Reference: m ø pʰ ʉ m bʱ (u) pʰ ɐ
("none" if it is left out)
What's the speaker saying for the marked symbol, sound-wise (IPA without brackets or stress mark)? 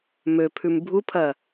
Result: u